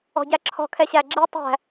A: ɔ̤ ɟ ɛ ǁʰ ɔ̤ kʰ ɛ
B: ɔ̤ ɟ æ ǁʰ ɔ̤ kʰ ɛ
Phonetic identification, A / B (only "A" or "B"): B